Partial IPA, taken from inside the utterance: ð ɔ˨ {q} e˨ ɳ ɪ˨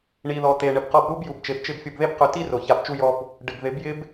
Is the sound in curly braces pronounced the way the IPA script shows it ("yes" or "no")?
no